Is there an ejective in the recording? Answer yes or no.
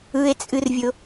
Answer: yes